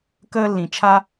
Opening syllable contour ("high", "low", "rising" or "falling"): high